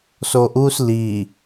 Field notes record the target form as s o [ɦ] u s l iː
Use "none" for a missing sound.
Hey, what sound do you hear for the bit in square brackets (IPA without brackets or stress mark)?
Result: ʔ